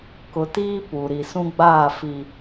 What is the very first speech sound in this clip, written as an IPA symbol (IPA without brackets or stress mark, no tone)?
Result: k